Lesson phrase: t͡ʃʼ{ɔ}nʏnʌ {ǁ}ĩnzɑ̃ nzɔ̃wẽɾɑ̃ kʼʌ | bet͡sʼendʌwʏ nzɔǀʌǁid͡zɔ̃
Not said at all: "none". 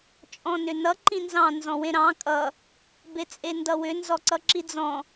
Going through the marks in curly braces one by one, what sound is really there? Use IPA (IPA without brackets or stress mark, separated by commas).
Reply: ɔ̃, ǃ